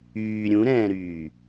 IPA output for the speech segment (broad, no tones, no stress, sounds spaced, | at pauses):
yː ɾʲ ũ ɾ ɛ̃ː ɾ yː